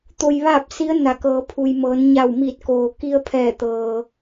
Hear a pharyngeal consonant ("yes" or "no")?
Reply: no